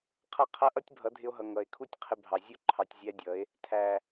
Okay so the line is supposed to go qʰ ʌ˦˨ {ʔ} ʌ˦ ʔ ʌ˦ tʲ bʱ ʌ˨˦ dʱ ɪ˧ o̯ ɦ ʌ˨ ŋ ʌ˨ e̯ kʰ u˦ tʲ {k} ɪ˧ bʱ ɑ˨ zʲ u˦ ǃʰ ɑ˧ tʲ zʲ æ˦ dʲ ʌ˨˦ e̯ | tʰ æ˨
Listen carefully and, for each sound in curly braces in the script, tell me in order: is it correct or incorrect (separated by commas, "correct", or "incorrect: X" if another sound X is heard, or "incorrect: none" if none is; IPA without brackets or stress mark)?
incorrect: qʰ, incorrect: qʰ